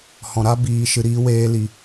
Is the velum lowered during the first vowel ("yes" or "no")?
yes